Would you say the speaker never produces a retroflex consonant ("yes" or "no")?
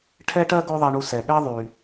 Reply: no